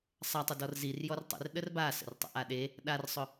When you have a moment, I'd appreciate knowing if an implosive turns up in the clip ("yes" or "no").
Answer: yes